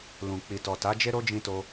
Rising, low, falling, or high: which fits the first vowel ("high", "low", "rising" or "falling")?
low